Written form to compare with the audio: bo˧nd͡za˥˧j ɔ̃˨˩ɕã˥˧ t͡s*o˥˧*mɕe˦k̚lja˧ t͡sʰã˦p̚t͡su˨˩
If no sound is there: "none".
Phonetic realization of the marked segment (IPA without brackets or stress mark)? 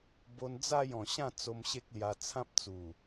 o˧